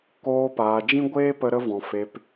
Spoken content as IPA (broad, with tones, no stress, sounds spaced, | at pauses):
k oː˧ p aː˨ d͡ʒ ĩ˦ ɡʷ eː˦ p ə˧ ɾ ə˧ v ɔ̃˨ f e˨ p